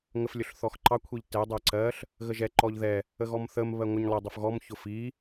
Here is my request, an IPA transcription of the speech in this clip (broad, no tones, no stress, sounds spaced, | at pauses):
ŋ ə f lʲ ʊ ɬ θ ɔ x ǃ ɑ kʷʰ i ʎ t ɛ dˤ ɛ ǀ ɜ ɬ | ɣ ə ʒ ɛ ǃ ɔ ʎ ð ɛ | ə ɣ ɔ m θ ə m β ɜ ŋʷ ə ɲ lˠ ə dˤ ʊ f ɣ ɔ m ç ʊ f i